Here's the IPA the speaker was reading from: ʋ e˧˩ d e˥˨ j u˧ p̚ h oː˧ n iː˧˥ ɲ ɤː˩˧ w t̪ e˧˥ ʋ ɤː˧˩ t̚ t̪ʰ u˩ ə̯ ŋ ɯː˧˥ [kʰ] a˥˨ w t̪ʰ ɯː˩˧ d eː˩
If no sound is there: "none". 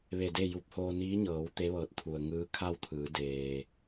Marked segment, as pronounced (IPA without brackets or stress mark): kʰ